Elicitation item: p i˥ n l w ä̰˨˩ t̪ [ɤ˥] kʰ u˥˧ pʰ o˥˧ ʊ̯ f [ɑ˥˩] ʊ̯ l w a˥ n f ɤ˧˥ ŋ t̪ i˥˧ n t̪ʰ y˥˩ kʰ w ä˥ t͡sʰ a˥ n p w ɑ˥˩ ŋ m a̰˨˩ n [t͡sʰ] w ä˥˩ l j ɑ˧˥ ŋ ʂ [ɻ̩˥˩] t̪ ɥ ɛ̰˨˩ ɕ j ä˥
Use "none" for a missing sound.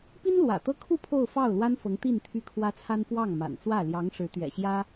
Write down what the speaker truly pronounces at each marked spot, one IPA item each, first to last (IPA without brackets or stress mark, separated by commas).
ɤ˥, ɑ˥˩, t͡s, ɻ̩˧˥